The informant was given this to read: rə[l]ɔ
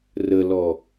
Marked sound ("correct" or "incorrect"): correct